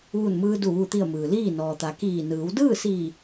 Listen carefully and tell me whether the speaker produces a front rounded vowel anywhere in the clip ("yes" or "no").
no